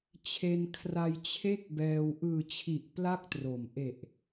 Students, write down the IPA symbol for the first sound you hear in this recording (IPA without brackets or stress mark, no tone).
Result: t͡ɕʰ